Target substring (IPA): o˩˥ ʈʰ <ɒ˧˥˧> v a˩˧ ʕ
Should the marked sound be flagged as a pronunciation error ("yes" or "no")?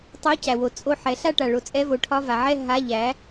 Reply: no